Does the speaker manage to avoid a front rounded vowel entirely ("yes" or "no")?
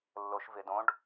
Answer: yes